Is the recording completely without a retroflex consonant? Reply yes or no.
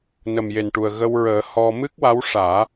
no